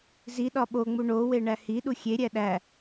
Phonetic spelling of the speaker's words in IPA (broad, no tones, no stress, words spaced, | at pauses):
ziɗɒ ɓoŋ͡mu ɳowe ɳæhiɗu xʲeɾʲæ ɗæ